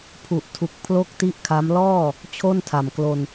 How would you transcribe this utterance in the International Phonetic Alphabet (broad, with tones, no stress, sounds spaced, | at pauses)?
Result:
pʰ u˨˩ ʔ tʰ u˨˩ k̚ pʰ l o˥˩ k̚ t i˥˩ ʔ kʰ a˦˥ m l ɔː˥˩ | t͡ɕʰ o˥˩ n tʰ a˨˩ m k l o˧ n